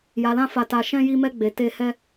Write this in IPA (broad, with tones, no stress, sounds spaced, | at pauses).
j a˨ l ã˧ f a˨ t a˨ ʃ ɛ̃˧ j i˧ m ɛ˧ ɡ͡b e˨ t e˧ h ɛ˧